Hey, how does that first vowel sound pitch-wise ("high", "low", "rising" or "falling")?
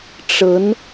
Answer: rising